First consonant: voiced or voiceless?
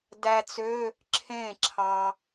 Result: voiced